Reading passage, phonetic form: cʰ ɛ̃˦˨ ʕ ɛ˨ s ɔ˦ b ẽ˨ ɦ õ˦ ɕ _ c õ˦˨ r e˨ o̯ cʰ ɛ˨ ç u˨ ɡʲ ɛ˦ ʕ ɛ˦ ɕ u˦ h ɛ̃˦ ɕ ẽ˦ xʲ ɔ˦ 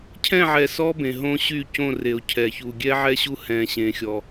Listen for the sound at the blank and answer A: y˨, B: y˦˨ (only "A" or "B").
B